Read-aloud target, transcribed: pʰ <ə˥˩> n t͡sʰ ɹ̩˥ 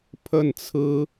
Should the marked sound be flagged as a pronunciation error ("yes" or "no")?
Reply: no